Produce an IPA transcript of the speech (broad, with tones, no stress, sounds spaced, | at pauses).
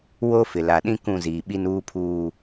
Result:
w o˦ f ɪ˨ l a˨ ɗ ĩ˦ k ũ˦˨ z iː˨ ɓ i˦ n uː˦ pʰ uː˦